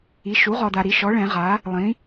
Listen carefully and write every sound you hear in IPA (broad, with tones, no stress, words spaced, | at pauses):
i˩˥ʃu˩˥ʁɔ˨da˨ ɾi˩˥ʃɔ˩˥ɭɛ̃˨˩˦ʁa˩˥ | lˠĩ˩˥